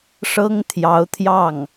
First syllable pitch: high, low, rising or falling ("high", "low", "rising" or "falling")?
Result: high